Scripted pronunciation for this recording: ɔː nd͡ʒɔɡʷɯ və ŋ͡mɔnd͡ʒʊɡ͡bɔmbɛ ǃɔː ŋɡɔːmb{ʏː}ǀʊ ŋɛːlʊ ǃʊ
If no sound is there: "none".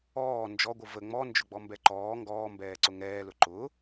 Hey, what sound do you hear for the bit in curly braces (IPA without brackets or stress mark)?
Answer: ɛː